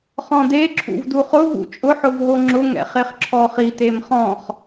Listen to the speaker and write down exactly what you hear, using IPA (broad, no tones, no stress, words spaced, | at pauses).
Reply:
χɔ̃de ǁʰṵvduχʊ vṵt͡ʃʼʊ ħʊvɦoŋ͡ǁʊ ŋɛ̰χeχǁʰɔχi temχɔ̃χ